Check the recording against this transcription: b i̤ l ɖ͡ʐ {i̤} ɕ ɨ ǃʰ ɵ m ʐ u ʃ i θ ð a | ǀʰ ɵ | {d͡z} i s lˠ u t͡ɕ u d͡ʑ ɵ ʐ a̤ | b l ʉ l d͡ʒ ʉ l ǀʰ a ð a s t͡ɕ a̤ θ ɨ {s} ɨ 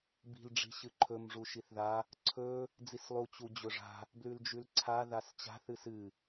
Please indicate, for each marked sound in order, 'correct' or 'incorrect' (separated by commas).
correct, correct, correct